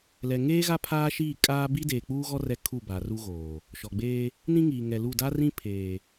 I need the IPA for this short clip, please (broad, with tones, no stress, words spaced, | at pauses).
lɛ˨ŋeː˦ ɣa˦pʰaː˦ʃiː˦˨kʼaː˦ bi˦deː˨k͡puː˦ɣɔ˦ rɛ˦kʰu˦˨ba˨ ru˦ɣoː˨ | ʃɔ˨ɡ͡beː˦ | nĩ˦ŋiː˨ŋɛ˨lu˦˨ da˦rĩ˦ pʰeː˨